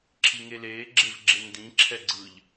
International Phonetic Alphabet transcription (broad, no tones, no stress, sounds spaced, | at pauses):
ǁʰ i ŋ e l eː ɡ͡ǁ e v ɡ͡ǁ e n d ĩ ǁʰ ɛ ɡ͡ǀ ɯ ʎ